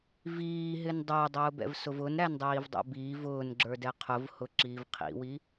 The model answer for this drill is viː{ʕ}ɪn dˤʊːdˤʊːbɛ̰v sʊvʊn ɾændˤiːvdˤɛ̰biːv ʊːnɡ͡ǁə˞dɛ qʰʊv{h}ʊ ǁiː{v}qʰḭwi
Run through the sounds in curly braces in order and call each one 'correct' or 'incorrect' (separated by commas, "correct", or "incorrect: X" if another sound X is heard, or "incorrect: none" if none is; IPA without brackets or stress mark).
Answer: incorrect: ɦ, correct, correct